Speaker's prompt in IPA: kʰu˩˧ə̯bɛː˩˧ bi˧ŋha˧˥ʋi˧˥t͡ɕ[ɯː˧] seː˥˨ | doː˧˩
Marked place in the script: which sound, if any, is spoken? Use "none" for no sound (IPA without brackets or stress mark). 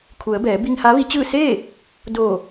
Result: ɯː˥˨